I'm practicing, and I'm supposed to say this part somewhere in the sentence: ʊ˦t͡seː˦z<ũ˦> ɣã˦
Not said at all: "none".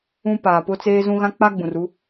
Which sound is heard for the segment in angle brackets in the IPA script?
ũ˦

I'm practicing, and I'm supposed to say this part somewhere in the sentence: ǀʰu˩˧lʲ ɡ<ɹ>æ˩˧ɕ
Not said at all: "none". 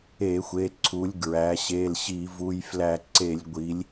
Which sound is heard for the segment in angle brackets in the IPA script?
ɹ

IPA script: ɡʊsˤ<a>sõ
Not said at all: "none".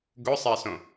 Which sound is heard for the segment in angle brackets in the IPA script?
a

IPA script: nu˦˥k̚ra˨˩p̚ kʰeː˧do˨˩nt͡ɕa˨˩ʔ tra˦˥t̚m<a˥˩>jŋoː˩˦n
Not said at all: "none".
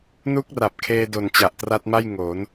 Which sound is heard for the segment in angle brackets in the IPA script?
a˥˩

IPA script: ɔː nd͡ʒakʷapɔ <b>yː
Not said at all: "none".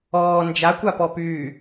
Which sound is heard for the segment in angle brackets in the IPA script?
p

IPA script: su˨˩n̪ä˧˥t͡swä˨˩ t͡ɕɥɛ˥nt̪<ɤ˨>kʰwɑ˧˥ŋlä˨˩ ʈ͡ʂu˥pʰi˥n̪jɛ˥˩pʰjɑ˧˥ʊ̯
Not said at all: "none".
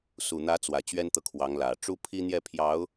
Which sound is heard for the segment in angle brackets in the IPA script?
ɤ˨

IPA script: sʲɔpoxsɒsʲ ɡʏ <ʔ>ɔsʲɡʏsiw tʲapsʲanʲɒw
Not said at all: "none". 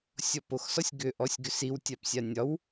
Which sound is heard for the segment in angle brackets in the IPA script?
ʔ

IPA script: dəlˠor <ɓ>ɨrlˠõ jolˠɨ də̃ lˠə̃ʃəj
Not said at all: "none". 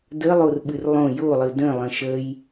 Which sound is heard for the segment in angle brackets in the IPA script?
ɓ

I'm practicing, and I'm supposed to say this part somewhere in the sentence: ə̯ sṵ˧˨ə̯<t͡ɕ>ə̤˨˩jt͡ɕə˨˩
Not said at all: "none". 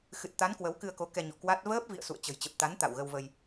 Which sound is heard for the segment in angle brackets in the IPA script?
t͡ɕ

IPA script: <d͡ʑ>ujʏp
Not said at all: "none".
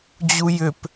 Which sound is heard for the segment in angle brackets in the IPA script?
d͡ʑ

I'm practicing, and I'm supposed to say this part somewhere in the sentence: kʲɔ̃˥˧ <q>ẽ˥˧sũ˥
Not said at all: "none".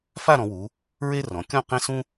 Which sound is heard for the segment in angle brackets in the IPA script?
q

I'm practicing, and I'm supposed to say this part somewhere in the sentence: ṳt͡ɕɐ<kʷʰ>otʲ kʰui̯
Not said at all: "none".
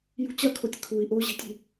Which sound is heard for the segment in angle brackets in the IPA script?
kʰ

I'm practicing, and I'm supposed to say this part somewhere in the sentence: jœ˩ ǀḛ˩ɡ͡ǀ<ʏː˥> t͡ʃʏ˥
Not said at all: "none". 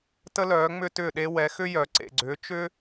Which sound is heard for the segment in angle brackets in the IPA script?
ʏː˩˥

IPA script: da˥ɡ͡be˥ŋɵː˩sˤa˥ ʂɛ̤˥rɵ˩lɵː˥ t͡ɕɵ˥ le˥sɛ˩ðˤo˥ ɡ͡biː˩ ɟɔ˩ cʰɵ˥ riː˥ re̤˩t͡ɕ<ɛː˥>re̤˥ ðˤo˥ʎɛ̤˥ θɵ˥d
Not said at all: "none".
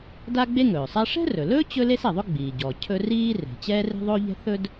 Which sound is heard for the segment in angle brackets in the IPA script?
ɛː˥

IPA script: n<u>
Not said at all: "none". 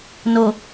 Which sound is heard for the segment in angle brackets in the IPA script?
o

